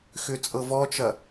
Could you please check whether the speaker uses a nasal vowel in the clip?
no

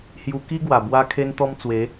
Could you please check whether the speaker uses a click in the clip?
no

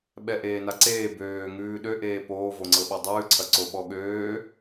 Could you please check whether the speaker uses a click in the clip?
yes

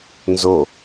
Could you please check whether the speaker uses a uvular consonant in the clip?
no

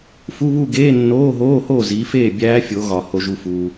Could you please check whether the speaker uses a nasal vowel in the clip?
no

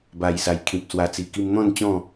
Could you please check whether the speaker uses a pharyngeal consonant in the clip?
no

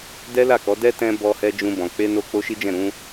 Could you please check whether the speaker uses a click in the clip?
no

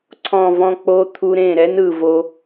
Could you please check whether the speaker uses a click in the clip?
yes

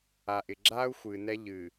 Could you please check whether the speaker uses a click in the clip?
yes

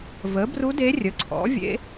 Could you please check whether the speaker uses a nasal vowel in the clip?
no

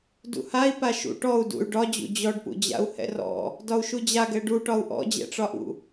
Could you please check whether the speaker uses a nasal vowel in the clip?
no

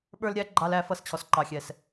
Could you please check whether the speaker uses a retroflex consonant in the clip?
no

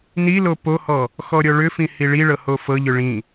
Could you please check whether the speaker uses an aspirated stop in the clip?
no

